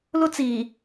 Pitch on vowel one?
high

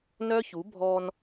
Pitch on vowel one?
high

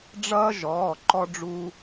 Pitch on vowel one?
high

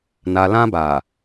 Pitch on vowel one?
low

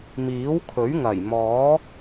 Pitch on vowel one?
rising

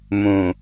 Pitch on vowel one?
low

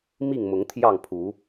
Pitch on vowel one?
falling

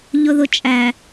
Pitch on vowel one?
low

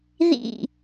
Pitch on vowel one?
falling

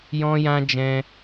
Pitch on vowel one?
high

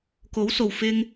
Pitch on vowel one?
rising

